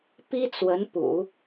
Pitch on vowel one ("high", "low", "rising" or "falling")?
high